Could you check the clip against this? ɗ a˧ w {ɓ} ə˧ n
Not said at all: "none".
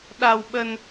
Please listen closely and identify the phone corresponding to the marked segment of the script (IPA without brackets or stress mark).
ɓ